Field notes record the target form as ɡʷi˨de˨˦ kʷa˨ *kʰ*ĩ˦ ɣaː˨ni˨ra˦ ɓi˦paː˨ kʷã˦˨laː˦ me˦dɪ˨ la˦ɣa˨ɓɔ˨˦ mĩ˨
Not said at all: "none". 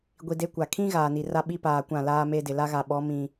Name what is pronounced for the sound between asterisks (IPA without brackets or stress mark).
kʰ